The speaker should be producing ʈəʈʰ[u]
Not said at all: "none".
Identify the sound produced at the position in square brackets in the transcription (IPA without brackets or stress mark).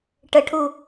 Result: u